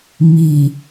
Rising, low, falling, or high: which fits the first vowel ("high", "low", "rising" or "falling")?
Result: low